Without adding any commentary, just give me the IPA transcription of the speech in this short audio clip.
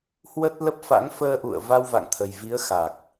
h w ə˦˥ t̚ l ə˦˥ p̚ f a̰˧˥ ŋ f əː˧ ʔ ṵ˧˨ ə̯ v a˧ w v a̰˧˨ ŋ t̪ʰ ə˨˩ j v i˨˦ ə̯ x a˨˩ k̚

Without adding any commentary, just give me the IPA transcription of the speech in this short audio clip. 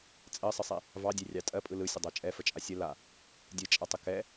t͡sʼ ɜ sˤ ə sˤ e | v ɑ dʲ e rʲ ɑ tʼ ɜ pʼ ɯ l ɯ sʲ ə dˤ a t͡ʃʼ ɛ f ə t͡ʃʼ a sʲ ə l a | dʲ ɯ t͡ʃʼ a tˤ ə k ɛ

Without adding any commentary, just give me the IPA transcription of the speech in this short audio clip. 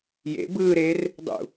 j ḛ b ɯː ɾ eː r | dˤ ṵ

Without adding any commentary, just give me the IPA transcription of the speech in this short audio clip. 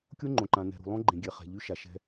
kʲ o˦ ŋ͡ǃ õ˨ ǃ ã˨ n ɛ̤˨ ɾ ṳ˨ lˠ õ˦ ɡ͡ǃ ẽ˨ ɡʲ ɛ˨ χ ɛ̤˨ ʎ y˦ ʃ a˨ ʃ ɛ̤˦

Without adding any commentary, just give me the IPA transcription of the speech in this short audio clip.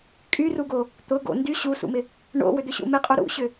kʼ y r u ɡ o | t̪ ʊ ɡ o̰ n d y ɕ u s ṵ m ɪ | ɳ o̰ w ʏ d̪ ʏ ɕ ṵ m ɪ qʼ u ɾ ṵ ɕ ʏ

